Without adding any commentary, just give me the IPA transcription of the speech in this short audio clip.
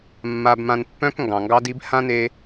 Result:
mː a˧ b m ã˧ n pː œ̃˦ k ŋ ɡ ɑ̃˨ ŋ ɡ ɑ˦ d i˦ b h ã˦ n e˧

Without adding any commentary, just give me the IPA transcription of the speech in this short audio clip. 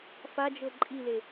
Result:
f a d͡ʒ ɤ ǃʼ i l e

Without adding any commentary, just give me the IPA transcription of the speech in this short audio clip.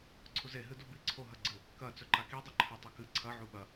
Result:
ǀʰ u z e ɦ ɨ d u b i ǀʰ o ɦ ɐ ɡ͡ǀ ɨ | k ɐ t͡s ɵ ǃ a k i dˤ ɐ ǃʰ ɵ tˤ ɐ k ɨ ǀʰ ɐ ʕ u ɓ ɐ

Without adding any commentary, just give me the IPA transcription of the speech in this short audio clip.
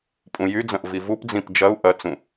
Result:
pʼ ũ j y d͡z ɐ̃ ʔ v i v u p d͡z ĩ p d͡ʒ ɐ u̯ ʔ ɐ t͡s ũ

